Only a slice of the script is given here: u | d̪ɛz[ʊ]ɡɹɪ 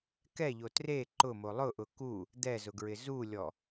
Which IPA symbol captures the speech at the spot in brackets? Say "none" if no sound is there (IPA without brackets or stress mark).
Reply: ʊ